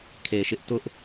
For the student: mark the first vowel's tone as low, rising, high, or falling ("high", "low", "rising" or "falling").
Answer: low